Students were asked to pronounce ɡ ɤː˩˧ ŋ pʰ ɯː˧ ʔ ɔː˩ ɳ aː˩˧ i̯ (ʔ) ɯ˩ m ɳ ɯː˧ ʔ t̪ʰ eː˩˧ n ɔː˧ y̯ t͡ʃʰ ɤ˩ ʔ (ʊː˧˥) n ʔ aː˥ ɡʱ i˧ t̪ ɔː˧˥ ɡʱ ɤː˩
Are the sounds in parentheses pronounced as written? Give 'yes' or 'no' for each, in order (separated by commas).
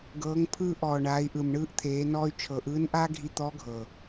yes, no